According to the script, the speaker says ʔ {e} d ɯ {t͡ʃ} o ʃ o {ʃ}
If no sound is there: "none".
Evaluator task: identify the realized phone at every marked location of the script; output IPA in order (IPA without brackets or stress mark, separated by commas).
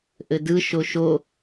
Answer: ɘ, ʃ, none